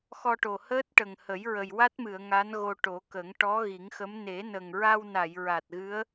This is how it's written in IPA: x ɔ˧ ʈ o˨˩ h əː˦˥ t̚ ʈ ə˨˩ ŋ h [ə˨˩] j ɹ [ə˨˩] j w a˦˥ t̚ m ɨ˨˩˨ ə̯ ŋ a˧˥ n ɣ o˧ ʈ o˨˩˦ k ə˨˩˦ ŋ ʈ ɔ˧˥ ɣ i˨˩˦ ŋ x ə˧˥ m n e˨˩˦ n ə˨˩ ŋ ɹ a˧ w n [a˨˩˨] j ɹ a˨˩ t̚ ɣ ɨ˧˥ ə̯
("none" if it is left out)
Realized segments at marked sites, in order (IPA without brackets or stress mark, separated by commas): ə˨˩˦, ə˨˩, a˨˩˨